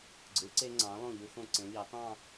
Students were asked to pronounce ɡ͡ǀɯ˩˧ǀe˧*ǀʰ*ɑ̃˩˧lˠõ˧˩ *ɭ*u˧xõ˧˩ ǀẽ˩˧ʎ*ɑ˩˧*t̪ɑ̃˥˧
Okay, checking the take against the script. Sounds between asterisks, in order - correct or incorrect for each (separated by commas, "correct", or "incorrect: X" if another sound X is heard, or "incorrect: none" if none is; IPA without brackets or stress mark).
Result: incorrect: ŋ͡ǀ, incorrect: ʎ, correct